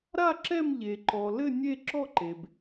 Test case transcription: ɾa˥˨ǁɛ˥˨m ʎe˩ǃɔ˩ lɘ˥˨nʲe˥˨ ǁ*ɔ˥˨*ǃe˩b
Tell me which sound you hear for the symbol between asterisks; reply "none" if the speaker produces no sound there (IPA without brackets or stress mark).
ɔ˥˨